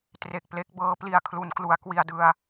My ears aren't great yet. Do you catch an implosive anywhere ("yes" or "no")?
no